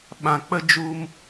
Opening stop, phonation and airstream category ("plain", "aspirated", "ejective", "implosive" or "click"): implosive